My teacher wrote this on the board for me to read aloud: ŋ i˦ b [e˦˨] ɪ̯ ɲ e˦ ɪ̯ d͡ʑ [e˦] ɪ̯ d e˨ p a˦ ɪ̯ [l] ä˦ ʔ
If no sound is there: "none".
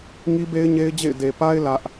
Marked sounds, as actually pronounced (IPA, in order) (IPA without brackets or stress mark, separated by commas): e˦, ḛ˦˨, l